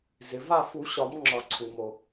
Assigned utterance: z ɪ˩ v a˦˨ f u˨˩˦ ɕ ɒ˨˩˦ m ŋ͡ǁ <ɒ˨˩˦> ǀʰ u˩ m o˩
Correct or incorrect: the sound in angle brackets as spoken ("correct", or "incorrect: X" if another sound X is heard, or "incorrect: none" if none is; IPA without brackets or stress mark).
correct